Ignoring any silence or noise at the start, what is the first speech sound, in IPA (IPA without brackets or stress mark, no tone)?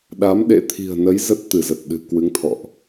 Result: ɗ